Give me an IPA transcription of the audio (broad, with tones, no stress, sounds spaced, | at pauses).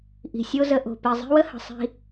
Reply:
ʔ i̤˨ sʲ o˦ z ə˧ ʔ o̤˨ p i˨ zˤ i̤˦ w ə˦ h ə̤˨ sˤ i̤˧